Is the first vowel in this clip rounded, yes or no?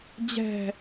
no